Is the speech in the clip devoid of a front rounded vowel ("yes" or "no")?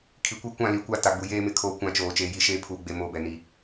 yes